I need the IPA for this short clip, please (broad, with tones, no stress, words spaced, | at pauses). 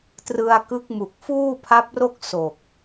trɯ˧a̯ kɯ˦˥k̚mu˨˩k̚ fuː˥˩pʰa˦˥p̚ro˥˩k̚ so˨˩k̚